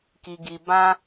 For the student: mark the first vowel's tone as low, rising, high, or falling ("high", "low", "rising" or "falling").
high